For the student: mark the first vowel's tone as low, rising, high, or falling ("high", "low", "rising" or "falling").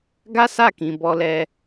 high